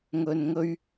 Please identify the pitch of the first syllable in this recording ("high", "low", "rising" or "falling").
low